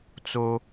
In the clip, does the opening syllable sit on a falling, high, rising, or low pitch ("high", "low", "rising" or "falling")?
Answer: high